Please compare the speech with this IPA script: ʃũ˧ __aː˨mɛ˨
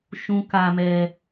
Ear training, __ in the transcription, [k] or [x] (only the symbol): k